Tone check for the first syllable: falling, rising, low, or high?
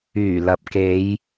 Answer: low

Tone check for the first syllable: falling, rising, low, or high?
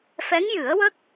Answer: rising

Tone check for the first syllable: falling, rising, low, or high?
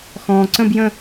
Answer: low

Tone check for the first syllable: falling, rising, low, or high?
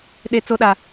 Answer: low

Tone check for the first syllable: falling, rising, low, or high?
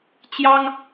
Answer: high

